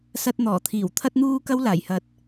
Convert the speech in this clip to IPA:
s ɐ˧ t̚ n̪ ɔː˨˩ t̪ʰ iː˨˩ w t̪ʰ ɐ˧ t̚ n̪ uː˧ k ɐ˥ w l aː˨˩ j h ɐ˨˥ t̚

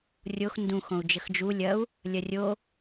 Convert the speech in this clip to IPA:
rʲ o x n d ũ x õ u̯ d͡ʒ ə x d͡ʒ u lʲ ɐ u̯ | lʲ ɐ rʲ o

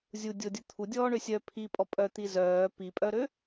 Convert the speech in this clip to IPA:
zʲ u dʲ o dʲ u t̪ʰ u dʲ ɔː ɳ ø sʲ œ pʰ i pʼ ɔ pʼ œ t̪ i z œː p i pʼ œ ɾ ø

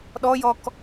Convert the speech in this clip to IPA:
ɗ ɔ j ɔ k

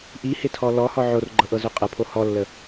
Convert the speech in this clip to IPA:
ʔ i h ɪ tʰ ɔ l ɔ h ɔ ʕ o r ɡ͡ǃ ɤ ʔ ɤ z ø qʼ ə pʰ o h ɔ lː ə

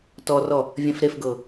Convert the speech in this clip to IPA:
t ɔ r ɔ | vʲ ɛ̃ f ɾ e f ɡ ɤ

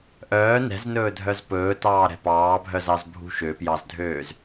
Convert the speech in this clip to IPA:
ʔ œː n ɛ̤ z n ɵː dʱ œ z p ɵː t ɑː ɾ ɛ̤ p ɑː bʱ œ z ɑ z bʱ ṳ ʃ ø p j ɑ z dʱ øː z

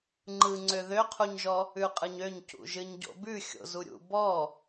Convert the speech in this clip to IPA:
ŋ͡ǃ ɯ ŋ͡ǀ ø ð ø qʰ u ɲ ʒ ɔ | ʉ qʼ ɯ ɲ ø ɲ c ṵ ʒ ɨ ɲ ɟ o̰ b ʉ xʲ o̰ z u ɾʲ ṵ b ɔ

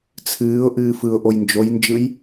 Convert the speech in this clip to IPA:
t͡sʰ ɨː ʊ̯ ʔ ɨː f ɯ ʊ̯ ʔ o j n d͡ʒ o j n d͡ʒ ɯ j

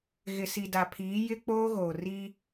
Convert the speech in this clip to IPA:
ɣ ɪ˨ s i˨ d a˨ pʰ iː˨˦ j ɪ˦ k͡p oː˦ ɣ oː˨ r iː˦

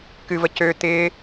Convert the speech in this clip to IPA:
k ɨ v ə c ø t̪ ɪ

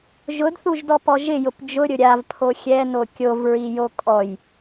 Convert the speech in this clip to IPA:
ʒ ʊ d θ u ʒ d ɔ p ɔ ʒ ɪ j ʊ p d͡ʒ ʊ ɾʲ ʊ ɾʲ a v pʰ o xʲ ɛ n o kʲ o v ɹ i j o kʼ ɔ j

